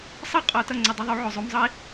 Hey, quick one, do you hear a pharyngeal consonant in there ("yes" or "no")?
yes